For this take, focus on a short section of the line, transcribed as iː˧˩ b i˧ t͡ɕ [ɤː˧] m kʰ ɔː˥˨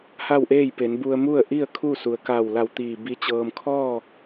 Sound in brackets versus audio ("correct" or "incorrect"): correct